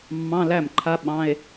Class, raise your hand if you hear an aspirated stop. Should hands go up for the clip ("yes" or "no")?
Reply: yes